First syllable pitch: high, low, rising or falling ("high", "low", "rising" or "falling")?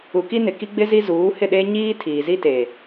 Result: low